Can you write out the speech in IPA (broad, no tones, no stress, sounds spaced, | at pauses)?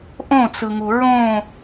ʔ õ t͡s ɯ ŋ u ɹ õ